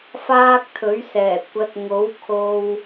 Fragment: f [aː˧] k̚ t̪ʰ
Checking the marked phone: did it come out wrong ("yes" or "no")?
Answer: yes